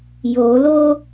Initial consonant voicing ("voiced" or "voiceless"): voiced